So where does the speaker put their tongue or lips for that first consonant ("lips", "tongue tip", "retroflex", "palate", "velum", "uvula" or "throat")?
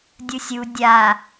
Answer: tongue tip